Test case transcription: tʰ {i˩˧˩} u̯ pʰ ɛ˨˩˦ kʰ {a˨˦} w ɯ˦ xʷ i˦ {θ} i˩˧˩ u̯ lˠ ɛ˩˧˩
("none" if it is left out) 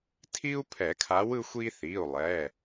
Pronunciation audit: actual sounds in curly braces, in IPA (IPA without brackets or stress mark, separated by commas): i˦, a˨˦, θ